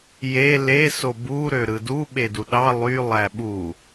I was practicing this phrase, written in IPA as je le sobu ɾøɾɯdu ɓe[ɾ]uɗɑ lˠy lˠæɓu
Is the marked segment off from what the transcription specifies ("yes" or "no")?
yes